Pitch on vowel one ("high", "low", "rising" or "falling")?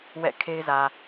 falling